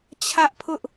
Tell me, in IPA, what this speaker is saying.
t͡ɕʰ ä˦ ʔ pʰ ʊ˦ ʔ

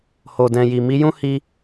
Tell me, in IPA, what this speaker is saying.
h o˨ d ɛ̃˨ j i˨ m i˨˦ j ũ˦ h i˦

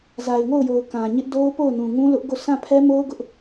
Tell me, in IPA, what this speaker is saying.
z a˨ ɪ̯ ŋ o˦˨ ʊ̯ j o˨ ʊ̯ k ã˨ ɲ ɪ˦ ʔ d o˦ ʊ̯ p o˦˨ ʊ̯ n ũ˨ ŋ ũ˦ l ʊ˦ ʔ ɡ o˦˨ s ã˦˨ pʰ ɛ˦ m o˦ ʊ̯ ɡ ʊ˦ ʔ

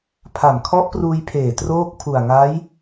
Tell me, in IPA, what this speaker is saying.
pʰ a˨˩ m kʰ ɔ˦˥ ʔ p r uː˧ j pʰ eː˨˩ t r oː˥˩ k̚ pʰ u˨˩ a̯ ŋ a˦˥ j

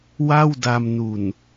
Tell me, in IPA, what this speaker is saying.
w a˥˩ w d a˧ m n u˨˩ n

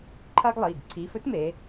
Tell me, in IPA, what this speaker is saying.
ǃʰ ɐː˥ ɡ lˠ iː˩˧˩ ɡ ǀʰ iː˨˥ f ɵ˥ t m eː˩˧

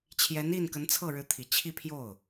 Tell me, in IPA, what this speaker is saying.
t͡ɕʰ j ɛ˧˥ n i˥˩ n k ə˧˥ n t͡sʰ ɤ˥˩ ɻ ɻ̩˧˥ t̪ʰ i˨˩ t͡ɕʰ i˥˧ pʰ j o˥˩ ʊ̯

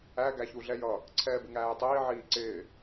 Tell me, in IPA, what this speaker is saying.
æ ɡ æ ç u ɮ ɛ j ʌ | ǀʰ ɛː b ɪ ŋ æː j tˤ iː ʕ iː ǀ ɪː

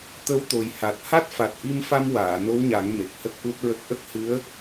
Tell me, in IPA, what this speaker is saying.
t̪ ə˧˥ w t̪ o˨˩ j h a˨˩ t̚ h a˦˥ t̚ f a˨˩ t̚ ʔ i˧ m f a˧ m w aː˨˩˨ n o˧˥ w ɲ a˨˩˦ ŋ m e˨˩ k̚ h ə˦˥ k̚ ʔ u˦˥ t̚ ɹ ə˦˥ k̚ ʔ ə˦˥ k̚ h ɨ˧˥ ə̯

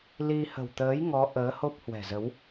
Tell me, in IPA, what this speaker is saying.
l i˧ h ə̤˨˩ w t̪ əː˨˦ j ŋ ɔ˨˦ ʔ əː˨˦ h o˦˥ p̚ h w ɛ̤˨˩ z ə˨˦ w

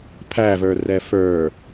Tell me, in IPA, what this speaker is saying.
pʰ æ v ə˞ r ɛ f ə˞

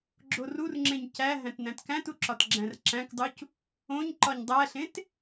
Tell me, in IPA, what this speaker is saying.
ɡ͡ǁ o r u r ŋ͡ǁ ẽ ɲ c æ ɦ æ̃ t n æ̃ t k æ̃ t u ǁ ɒ t ɡ͡ǁ æ̃ r ǁ æ̃ k dˤ u c | õ ɲ ǃ ɒ ɲ dˤ æ ɬ ẽ t

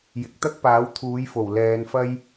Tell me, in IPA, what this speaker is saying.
j ɪ˨ k̚ t̪ ɐ˥ k̚ p aː˨˥ w t̪ʰ uː˨˥ j f o˨˩ w l ɛː˨˧ n f ɐ˥ j

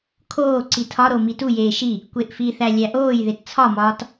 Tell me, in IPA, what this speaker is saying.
kʰ oː ǀ i tʰ ɒ ɾ o m i t u j eː ʃ i | kʷ e ʔ f i θ æ lʲ æ ʔ oː j ð e t t͡sʰ ɒ m ɒː t

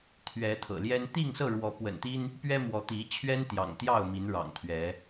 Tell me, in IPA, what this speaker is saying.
t̪ʰ ɥ ɛ˨˦ t̪ʰ ɤ̰˨˩ l j ɛ˦ n t̪ i˥˨ ŋ s ɤ˥˨ ɻ w ɔ˨˦ p w ə̰˨˩ n t̪ i˦ n | p ɥ ɛ˦ m w ɔ˨˦ t̪ i˨˦ t͡ɕʰ ɥ ɛ˦ n t̪ j ɑ̰˨˩ ŋ t̪ j ɑ˥˨ ʊ̯ m i˨˦ n ɻ ɑ̰˨˩ ŋ t̪ʰ ɥ ɛ˨˦

